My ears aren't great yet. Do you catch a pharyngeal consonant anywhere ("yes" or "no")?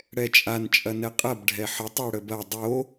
yes